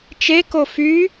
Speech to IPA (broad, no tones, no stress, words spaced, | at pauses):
t͡ʃeko fy